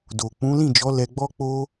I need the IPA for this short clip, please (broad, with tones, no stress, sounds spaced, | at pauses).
d o˨ k͡p ũ˨˦ l ĩ˦˨ d͡ʒ ɔ˨˦ l ɛ˧ ɡ͡b ɔ˦ k͡p o˦